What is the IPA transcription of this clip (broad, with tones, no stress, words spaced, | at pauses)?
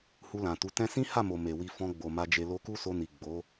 hu˧lã˨tu˨˦ tɛ̃˦ sĩ˦ha˦˨mo˨ me˨wi˧ fɔ̃˧ɡ͡bo˨ ma˧d͡ʒe˧ lo˧ku˦so˧ni˨ ɡ͡bo˨˦